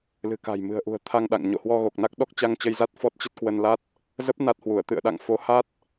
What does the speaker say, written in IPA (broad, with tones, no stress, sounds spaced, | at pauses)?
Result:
l ɨ̤˨˩ k a̤˨˩ j m ɨ̤˨˩ ə̯ ʔ ṳ˨˩ ə̯ t̪ʰ a˧ ŋ ɗ a̰˧˨ ŋ ɲ o̰˧˨ h w ɔ˧ ɣ o˨˩ k̚ n a˦˥ k̚ ɗ ɔ˦˥ k̚ t͡ɕ a˧ ŋ t͡ɕ ə˧ j z a˦˥ t̚ f ɔ˦˥ t̚ t͡ɕ ə˦˥ t̚ k w ə˧ n l a˦˥ t̚ | z ə˦˥ p̚ n a˦˥ t̚ h w u˧˩ ə̯ t̪ ɨ̰˧˨ ə̯ ɗ a̰˧˨ ŋ f o˨˦ h a˦˥ t̚